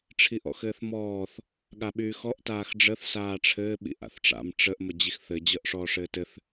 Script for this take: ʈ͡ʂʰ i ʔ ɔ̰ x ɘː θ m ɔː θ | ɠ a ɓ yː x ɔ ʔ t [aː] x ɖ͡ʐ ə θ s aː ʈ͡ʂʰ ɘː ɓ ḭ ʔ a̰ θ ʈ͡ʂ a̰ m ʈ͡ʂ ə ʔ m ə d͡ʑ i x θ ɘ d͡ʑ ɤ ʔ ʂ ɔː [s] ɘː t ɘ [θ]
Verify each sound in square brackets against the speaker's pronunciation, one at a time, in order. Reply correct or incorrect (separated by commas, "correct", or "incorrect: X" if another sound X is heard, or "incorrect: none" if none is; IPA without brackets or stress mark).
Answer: correct, incorrect: ʂ, correct